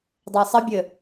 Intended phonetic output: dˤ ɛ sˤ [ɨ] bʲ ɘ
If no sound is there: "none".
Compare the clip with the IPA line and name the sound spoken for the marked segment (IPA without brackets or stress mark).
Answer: ə